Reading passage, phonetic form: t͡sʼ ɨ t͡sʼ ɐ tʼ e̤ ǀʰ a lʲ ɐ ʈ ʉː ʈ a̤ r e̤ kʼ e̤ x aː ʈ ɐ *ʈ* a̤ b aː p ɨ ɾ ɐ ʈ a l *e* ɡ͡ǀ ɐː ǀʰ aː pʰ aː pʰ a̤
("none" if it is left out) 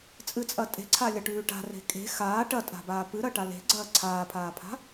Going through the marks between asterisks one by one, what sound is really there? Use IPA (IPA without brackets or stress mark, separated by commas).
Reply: tʼ, e̤